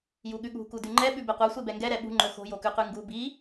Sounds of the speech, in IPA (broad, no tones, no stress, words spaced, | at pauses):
juɠʉɠṳ kudʉŋ͡ǃɛ ɓʉbeqʷɑ sʷebɛŋɡɛ ɾɛɓṳ ŋ͡ǃɵxo̤ jokʉqʉŋɡu bi